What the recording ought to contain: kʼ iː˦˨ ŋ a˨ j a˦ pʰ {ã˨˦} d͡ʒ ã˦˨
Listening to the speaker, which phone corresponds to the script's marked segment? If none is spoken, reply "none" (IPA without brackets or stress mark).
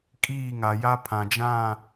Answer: ã˨